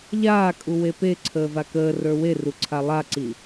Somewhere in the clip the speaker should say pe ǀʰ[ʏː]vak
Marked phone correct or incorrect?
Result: incorrect: əː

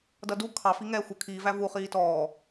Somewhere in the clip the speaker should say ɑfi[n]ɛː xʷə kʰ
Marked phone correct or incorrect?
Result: incorrect: ŋ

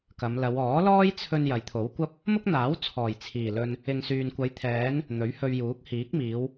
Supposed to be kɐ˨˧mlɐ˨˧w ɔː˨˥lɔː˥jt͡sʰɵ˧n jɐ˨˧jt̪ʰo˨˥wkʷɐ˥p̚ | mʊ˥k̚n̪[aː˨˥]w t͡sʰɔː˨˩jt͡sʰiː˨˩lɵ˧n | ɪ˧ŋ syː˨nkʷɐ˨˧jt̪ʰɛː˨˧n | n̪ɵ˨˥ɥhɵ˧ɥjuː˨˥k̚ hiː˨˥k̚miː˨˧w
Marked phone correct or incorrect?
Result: correct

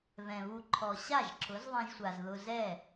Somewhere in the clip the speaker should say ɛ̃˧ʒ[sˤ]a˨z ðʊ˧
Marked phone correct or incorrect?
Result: incorrect: sʷ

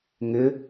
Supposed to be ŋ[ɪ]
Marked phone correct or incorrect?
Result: correct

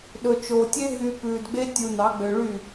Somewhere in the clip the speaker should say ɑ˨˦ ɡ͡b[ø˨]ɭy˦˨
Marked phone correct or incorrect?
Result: correct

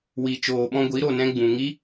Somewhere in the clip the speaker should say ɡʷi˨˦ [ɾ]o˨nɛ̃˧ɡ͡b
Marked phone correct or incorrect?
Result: correct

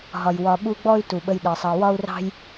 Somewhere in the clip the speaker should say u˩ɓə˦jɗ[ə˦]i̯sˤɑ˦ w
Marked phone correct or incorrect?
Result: incorrect: ə˨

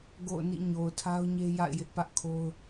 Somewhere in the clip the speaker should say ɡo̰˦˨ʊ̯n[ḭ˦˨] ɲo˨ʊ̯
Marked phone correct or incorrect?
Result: correct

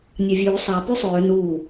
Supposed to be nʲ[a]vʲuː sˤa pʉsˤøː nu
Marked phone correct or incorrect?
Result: correct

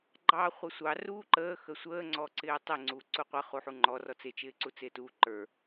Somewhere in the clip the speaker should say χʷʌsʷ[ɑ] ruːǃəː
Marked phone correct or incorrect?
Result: correct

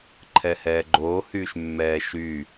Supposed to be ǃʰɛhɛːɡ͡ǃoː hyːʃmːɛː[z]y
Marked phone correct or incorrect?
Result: incorrect: ʃ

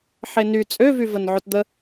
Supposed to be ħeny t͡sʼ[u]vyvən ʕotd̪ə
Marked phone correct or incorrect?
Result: incorrect: ø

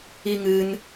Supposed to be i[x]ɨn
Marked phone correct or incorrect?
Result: incorrect: ŋ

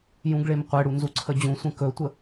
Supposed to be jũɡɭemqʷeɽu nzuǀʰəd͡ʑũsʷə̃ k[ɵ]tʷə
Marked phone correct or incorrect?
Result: correct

